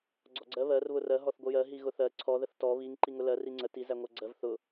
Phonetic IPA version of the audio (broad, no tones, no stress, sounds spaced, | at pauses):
ɡ͡ǀ ɔ ɡ͡ǀ ɜ β ɜ r β ʊ r ɜ ɦ ɔ θ ɡʷ ə j ɜ ɦ i ɣ ʊ θ ɜ ǀʰ ɔ ð ə θ t ɔ β i ŋ ǃ i ŋ ʊ l ɜ r i ŋ͡ǀ ə t i z æ ŋʷ æ ɡ͡ǀ ɜ v θ ʊ